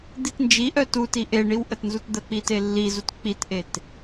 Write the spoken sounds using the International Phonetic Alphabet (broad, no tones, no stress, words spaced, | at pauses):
d̪itnd͡ʒiʔœ tuti ʔeɳiw ʔətnzutd̪ək͡pi telːizut k͡pitʔet